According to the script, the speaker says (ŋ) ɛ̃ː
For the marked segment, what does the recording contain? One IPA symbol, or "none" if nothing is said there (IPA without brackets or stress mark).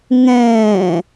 ŋ